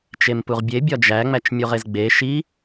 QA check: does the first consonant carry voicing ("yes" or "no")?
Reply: no